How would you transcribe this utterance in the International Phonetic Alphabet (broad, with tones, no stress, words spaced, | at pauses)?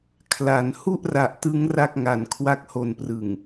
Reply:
kʰla˩˦n hu˥˩ʔra˨˩ʔtɯ˦˥ŋ ra˥˩k̚ŋa˨˩n kʰwa˦˥k̚ ho˨˩nprɯ˨˩ŋ